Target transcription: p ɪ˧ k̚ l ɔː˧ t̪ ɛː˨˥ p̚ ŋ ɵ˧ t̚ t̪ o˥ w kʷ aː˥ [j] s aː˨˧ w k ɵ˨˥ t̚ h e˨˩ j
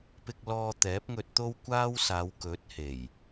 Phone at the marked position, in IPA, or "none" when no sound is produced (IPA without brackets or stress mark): w